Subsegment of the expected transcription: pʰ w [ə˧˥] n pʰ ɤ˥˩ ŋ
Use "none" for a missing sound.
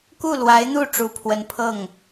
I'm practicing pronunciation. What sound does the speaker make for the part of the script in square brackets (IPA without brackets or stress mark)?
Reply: ə˧˥